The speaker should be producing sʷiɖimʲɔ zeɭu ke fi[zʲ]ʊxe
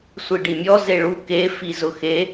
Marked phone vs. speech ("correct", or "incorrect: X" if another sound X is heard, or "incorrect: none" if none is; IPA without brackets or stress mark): incorrect: z